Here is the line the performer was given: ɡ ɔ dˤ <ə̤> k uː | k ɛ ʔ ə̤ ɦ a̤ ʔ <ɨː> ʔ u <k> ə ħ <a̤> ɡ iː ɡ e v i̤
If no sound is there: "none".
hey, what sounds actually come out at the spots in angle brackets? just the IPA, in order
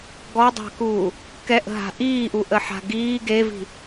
a̤, iː, ʔ, a̤

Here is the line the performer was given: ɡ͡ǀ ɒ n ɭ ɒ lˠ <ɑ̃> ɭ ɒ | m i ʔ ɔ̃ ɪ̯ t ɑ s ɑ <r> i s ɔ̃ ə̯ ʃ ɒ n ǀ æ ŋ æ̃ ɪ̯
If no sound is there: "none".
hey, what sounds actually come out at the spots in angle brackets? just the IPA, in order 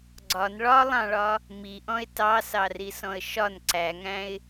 ɑ̃, r

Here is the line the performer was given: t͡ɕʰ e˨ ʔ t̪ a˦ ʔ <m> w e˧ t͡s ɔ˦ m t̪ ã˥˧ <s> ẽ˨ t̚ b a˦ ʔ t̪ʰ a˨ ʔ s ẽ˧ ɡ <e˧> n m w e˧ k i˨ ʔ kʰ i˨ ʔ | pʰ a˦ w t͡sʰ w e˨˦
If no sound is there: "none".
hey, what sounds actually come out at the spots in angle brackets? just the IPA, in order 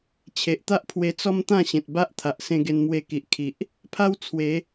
pʰ, ɕ, e˧

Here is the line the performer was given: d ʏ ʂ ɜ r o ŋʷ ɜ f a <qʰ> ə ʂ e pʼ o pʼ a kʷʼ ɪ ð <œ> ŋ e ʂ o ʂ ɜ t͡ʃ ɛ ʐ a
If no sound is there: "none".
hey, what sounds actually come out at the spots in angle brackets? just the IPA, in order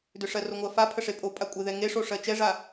pʰ, ɛ

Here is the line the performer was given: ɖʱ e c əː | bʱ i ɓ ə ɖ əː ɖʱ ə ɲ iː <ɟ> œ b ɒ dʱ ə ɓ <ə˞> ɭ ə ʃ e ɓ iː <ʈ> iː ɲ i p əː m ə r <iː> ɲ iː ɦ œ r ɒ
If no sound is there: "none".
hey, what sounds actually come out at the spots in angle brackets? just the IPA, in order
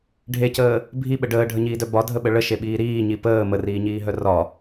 d, ə, ɾ, iː

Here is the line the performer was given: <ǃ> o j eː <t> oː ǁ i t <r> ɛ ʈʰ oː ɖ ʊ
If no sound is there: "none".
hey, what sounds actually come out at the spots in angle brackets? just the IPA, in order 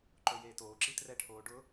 ǃ, t, r

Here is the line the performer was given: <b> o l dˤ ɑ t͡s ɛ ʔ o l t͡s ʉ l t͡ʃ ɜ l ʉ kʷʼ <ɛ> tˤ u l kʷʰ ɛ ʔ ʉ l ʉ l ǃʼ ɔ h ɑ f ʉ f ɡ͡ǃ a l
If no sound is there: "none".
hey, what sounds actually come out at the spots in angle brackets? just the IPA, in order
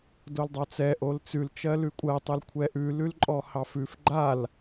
d, ɜ

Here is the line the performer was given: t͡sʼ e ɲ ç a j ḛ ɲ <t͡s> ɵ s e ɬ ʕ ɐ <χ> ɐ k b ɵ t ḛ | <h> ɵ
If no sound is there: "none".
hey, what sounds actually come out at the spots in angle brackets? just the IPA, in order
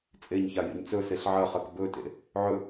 t͡s, χ, ʕ

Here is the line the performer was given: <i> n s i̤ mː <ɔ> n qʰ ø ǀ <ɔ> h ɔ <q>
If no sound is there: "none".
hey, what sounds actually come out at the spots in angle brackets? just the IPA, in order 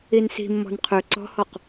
i, ɔ̤, ɔ̤, q

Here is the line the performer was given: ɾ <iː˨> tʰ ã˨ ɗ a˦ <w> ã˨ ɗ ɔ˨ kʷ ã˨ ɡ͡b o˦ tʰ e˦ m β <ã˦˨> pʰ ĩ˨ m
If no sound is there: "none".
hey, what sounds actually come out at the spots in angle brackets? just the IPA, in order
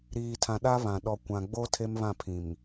iː˨, β, ã˦˨

